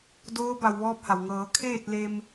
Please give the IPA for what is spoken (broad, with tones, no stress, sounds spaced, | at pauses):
d oː˧˥ b a˧ w ʋ ɔː˧˥ p̚ h a˩ w ŋ ɤː˩˧ kʰ eː˥˨ t̚ l e˧ m